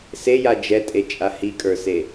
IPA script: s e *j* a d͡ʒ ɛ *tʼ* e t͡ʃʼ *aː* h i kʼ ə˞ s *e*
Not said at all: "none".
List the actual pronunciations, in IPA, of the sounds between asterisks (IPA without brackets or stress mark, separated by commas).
j, tʼ, a, e